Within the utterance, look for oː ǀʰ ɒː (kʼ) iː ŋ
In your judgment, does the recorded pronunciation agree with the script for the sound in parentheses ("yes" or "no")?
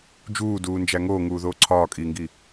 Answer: yes